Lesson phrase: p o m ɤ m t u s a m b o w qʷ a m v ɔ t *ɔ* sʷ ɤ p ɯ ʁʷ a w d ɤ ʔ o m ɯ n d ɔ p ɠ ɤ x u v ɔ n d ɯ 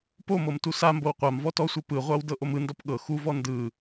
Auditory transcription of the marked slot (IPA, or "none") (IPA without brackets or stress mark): ɔ